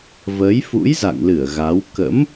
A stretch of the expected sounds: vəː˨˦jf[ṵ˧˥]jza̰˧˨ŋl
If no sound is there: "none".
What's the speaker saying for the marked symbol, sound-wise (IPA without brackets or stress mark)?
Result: ṵ˧˥